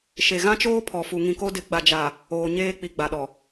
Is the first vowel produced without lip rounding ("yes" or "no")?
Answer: yes